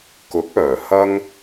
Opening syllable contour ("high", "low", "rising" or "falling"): rising